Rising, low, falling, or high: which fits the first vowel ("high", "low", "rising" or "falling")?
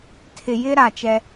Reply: low